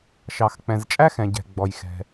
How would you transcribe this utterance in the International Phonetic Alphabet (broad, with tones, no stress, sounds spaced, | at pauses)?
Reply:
ʃ ɑ˩ x k͡p ɛ̃˩ z t͡ʃʼ æ˥ x ɛ̃˩ ɟ ɛ̤˩ ɡ͡b ɔ˩ j x ɛ̤˩